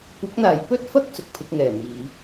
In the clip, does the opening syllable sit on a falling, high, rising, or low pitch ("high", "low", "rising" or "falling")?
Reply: rising